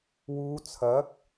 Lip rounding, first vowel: rounded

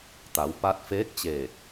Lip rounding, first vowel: unrounded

